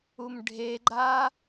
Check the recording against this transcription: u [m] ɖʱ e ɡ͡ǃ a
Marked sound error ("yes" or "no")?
no